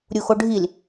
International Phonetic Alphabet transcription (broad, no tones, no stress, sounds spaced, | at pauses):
ɾʲ u x o ɖʱ i l